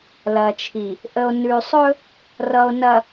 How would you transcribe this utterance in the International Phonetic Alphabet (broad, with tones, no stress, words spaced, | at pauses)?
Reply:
lɐ˨t͡ʃʰi˨ | ʔə˨o̯nʉ˨sˤɵ˦ | rʌ˨o̯nɐ˨